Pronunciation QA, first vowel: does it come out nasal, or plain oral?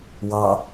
oral